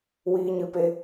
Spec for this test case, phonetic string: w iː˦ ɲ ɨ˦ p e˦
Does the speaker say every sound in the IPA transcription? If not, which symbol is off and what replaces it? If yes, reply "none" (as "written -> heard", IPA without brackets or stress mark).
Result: none